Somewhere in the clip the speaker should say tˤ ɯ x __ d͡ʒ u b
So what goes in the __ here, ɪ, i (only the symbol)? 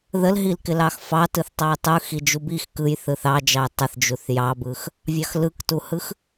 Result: i